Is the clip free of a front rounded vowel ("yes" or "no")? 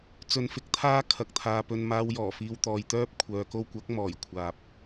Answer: no